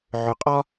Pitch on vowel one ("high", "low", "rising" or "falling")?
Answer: low